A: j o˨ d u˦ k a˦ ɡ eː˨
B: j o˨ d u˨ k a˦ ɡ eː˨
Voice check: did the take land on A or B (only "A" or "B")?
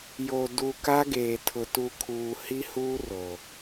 B